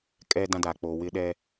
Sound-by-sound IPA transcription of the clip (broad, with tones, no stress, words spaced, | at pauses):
kʼɛ˦dã˦da˨ k͡po˨wɪ˦ɗɛ˦